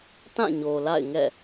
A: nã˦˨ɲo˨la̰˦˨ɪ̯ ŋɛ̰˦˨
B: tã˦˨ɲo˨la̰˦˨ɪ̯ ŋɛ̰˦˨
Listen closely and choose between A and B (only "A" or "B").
B